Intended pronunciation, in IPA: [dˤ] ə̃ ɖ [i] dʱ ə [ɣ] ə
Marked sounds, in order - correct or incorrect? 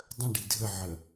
correct, correct, incorrect: ʕ

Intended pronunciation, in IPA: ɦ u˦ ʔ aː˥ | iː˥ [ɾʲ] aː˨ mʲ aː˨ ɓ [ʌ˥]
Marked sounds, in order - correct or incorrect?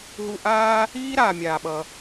incorrect: ɾ, incorrect: ʌ˨

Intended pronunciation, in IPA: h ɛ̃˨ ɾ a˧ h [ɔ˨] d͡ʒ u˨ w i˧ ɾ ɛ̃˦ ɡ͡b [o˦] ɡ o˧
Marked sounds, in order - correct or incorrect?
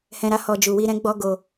correct, incorrect: ɔ˦

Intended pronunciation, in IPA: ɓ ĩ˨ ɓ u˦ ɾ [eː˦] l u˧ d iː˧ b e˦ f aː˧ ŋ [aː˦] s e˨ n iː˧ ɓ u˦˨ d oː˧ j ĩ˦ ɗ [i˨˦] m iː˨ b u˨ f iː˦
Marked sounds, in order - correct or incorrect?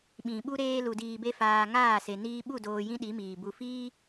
correct, incorrect: aː˦˨, correct

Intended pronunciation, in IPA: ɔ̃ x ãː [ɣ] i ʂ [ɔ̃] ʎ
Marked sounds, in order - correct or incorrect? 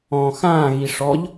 correct, incorrect: ɔ

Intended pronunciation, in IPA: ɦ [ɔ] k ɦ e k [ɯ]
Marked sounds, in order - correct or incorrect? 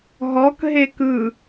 correct, correct

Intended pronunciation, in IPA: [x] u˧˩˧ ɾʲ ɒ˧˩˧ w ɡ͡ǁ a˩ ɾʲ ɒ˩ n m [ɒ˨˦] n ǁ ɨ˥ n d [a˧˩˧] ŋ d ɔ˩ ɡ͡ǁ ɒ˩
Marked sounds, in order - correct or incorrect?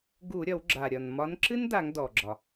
incorrect: ɡ, correct, correct

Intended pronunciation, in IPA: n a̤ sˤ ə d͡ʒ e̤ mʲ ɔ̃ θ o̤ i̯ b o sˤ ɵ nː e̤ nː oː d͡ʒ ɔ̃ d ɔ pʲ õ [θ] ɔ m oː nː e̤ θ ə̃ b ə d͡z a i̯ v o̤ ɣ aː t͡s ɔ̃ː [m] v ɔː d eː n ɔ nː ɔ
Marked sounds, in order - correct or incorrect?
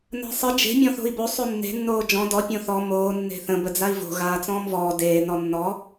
correct, correct

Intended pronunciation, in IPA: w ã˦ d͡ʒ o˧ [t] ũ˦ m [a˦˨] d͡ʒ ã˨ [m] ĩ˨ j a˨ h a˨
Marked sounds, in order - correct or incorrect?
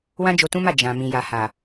correct, correct, correct

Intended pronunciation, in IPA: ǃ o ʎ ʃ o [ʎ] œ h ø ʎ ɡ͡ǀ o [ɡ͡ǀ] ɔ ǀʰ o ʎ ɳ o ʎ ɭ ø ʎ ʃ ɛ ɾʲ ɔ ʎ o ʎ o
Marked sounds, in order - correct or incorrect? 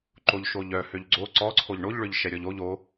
correct, incorrect: ǀ

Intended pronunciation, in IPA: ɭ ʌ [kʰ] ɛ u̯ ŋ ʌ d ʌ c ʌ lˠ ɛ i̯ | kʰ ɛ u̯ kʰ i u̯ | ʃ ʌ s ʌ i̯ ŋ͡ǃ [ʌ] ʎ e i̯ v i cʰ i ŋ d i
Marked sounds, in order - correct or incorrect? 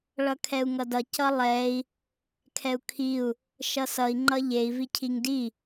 correct, correct

